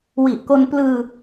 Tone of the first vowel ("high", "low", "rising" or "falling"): low